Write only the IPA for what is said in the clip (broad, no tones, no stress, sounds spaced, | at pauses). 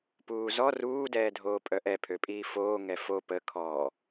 p uː z ɔ r uː d ɛː dʱ oː pʼ œ ʔ ɛ pʰ ø pʼ iː f oː ŋ ɛ f o p ə kʰ ɔː